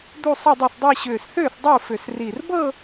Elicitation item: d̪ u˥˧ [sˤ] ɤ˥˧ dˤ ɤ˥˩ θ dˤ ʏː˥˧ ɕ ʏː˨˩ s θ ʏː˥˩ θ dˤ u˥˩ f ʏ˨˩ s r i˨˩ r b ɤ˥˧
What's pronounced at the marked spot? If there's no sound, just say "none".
sˤ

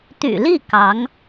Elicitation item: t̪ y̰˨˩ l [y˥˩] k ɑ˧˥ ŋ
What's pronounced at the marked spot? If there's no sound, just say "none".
i˥˩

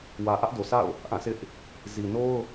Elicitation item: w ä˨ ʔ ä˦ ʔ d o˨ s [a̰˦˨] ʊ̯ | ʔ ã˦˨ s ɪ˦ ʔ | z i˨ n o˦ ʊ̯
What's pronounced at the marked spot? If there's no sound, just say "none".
a̰˦˨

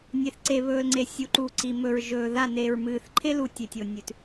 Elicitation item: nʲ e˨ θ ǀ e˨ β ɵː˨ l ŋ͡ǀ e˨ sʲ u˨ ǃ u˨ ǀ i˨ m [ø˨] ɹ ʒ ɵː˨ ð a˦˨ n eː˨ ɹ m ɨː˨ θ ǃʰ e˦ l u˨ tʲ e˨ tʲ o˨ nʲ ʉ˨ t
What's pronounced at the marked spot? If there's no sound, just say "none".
ɵ˨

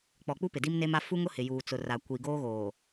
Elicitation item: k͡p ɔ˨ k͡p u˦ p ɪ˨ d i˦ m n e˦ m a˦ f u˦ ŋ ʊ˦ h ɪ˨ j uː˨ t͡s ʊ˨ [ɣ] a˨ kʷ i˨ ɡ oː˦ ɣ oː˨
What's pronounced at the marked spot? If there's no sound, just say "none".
r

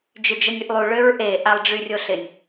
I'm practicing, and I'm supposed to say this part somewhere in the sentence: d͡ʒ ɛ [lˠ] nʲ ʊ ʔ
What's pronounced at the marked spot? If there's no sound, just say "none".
none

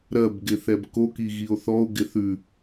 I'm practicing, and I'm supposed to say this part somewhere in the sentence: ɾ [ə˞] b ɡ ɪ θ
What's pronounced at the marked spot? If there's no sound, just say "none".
ɜ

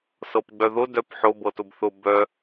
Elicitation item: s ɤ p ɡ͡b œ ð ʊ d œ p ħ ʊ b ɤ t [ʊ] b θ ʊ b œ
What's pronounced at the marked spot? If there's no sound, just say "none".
ʊ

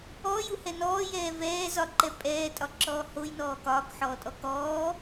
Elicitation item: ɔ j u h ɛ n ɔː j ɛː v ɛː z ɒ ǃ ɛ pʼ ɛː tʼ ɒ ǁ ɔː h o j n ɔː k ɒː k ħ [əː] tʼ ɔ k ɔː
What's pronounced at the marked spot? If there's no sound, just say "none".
ɔː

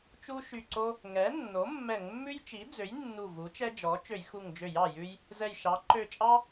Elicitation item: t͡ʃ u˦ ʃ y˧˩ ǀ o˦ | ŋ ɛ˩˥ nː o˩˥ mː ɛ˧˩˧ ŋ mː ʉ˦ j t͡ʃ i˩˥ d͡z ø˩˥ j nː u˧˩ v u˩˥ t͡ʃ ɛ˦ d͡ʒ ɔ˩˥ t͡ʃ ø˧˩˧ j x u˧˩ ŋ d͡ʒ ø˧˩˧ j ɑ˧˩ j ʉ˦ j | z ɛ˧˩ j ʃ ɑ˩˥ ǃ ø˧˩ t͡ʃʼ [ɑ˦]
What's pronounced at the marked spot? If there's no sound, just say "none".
ɑ˦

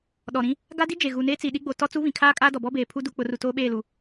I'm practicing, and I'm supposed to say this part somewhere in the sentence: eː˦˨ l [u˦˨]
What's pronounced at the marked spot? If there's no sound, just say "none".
u˨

